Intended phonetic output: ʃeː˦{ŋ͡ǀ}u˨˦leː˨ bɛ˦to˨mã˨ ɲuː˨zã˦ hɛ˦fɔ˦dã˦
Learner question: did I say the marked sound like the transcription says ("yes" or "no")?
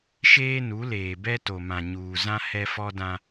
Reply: no